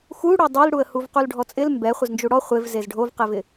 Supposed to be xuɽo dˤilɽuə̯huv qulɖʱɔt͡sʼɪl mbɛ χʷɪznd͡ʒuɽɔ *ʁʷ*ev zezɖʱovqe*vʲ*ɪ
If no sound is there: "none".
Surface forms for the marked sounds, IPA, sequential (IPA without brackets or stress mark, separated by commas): χʷ, v